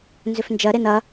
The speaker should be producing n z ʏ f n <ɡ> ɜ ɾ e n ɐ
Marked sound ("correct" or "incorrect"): incorrect